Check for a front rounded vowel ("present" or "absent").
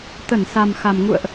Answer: absent